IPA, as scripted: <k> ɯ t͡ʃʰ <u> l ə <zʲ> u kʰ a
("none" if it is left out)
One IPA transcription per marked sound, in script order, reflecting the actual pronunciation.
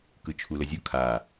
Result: k, u, zʲ

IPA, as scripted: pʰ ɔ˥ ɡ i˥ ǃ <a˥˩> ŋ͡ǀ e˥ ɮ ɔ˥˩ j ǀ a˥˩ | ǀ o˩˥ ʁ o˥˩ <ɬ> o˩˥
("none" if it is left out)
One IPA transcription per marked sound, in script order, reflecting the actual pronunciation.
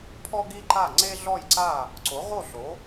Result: a˥˩, ɬ

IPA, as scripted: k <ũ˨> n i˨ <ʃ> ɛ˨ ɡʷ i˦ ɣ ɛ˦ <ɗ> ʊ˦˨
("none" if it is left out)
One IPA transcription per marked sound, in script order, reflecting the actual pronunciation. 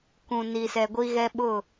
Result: ũ˨, s, ɓ

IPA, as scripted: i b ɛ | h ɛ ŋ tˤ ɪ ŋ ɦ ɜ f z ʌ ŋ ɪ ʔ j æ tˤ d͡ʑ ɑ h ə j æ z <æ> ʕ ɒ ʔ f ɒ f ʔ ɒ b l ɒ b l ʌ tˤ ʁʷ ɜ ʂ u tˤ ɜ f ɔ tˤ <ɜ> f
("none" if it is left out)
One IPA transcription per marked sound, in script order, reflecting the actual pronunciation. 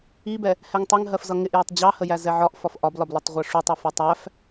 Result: ɛ, æ

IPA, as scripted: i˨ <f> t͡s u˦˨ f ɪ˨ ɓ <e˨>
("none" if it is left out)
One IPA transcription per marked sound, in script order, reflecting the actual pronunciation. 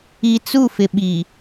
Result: none, i˨

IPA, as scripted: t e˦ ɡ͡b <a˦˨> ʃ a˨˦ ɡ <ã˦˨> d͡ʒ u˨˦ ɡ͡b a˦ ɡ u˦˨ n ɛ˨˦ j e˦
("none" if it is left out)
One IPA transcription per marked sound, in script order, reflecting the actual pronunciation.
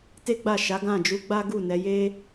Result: a˦˨, ã˦˨

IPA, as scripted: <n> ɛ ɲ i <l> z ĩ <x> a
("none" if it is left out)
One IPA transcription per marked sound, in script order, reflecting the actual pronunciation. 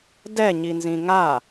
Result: d, n, ŋ

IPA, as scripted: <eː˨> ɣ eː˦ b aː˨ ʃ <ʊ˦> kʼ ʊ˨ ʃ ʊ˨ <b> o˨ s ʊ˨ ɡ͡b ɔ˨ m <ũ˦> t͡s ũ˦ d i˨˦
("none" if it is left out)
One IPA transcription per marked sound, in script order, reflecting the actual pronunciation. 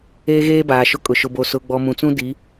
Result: eː˦, ʊ˦, b, ũ˨

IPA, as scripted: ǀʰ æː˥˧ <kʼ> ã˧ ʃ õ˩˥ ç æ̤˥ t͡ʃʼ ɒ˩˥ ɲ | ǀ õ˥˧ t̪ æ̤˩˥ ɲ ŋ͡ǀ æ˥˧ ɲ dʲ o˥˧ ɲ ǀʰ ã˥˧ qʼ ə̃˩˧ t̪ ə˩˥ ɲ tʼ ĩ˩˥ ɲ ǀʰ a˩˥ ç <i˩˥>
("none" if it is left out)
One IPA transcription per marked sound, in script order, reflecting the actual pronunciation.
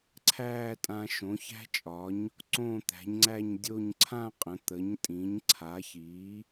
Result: tʼ, i˩˥

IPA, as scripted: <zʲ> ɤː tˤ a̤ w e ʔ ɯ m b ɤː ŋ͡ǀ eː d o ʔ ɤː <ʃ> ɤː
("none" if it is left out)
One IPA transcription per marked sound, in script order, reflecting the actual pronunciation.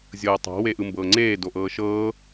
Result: zʲ, ʃ

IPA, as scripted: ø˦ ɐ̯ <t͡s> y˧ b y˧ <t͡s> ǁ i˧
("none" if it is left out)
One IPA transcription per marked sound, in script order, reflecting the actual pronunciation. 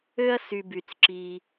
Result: s, t͡s

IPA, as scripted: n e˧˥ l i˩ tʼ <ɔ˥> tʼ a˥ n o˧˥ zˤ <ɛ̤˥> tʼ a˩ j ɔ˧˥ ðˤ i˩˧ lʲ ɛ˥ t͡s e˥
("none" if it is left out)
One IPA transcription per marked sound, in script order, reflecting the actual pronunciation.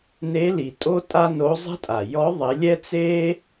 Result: o˥, ɛ̤˥

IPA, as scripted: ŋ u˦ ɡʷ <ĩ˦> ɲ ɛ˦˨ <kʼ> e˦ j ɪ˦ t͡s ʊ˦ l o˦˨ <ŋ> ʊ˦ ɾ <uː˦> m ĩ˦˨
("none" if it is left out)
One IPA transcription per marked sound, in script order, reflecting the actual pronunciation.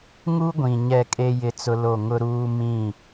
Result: ĩ˨, kʼ, ŋ, uː˦

